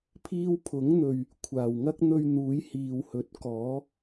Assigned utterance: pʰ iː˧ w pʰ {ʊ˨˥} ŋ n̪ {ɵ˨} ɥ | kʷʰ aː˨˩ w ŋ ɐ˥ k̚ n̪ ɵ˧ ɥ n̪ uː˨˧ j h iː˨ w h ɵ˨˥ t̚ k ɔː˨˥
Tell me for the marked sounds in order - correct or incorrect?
correct, correct

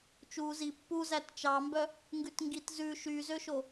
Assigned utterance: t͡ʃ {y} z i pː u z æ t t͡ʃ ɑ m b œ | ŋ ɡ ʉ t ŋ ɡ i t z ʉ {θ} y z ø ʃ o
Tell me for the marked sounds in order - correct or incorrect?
incorrect: u, incorrect: ʃ

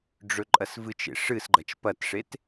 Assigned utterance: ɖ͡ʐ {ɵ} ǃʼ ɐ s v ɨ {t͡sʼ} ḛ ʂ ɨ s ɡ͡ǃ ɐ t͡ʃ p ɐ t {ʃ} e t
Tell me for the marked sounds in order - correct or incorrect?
correct, incorrect: t͡ʃ, incorrect: ʂ

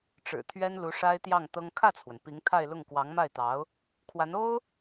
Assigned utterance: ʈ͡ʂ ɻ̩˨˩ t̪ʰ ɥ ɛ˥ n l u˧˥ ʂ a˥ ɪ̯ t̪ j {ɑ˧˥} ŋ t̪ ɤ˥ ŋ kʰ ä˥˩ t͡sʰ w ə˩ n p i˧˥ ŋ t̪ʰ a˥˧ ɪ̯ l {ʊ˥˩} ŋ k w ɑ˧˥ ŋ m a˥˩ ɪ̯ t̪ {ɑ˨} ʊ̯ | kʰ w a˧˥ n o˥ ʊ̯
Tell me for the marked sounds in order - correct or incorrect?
incorrect: ɑ˥˩, correct, incorrect: ɑ˧˥

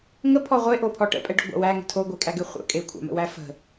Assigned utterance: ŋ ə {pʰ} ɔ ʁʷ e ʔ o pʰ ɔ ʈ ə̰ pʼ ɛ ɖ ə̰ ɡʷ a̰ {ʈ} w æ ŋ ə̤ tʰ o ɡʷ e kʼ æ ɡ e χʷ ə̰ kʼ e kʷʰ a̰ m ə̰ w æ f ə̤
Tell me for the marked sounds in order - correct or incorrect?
correct, incorrect: none

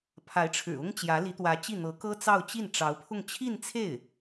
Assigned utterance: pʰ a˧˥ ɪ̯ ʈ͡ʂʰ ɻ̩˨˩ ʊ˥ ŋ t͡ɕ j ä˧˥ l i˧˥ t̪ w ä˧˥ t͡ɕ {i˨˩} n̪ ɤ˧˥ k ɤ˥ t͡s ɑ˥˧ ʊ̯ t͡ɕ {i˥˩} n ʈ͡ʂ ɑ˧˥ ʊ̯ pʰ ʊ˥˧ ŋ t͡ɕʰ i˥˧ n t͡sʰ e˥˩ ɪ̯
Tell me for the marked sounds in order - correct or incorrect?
incorrect: i˥˩, correct

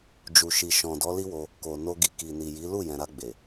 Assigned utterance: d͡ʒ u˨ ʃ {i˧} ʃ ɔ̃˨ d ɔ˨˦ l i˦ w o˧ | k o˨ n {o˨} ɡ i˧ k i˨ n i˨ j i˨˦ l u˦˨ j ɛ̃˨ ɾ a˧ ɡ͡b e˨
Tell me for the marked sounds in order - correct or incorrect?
incorrect: i˨, incorrect: o˧

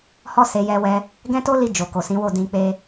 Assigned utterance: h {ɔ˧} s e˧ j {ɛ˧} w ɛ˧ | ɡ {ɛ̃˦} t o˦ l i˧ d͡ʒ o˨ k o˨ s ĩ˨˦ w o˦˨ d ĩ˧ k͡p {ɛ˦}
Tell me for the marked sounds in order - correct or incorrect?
incorrect: ɔ˦, correct, correct, incorrect: e˦

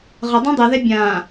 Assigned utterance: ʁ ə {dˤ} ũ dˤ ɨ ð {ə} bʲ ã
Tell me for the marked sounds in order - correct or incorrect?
correct, incorrect: ɛ

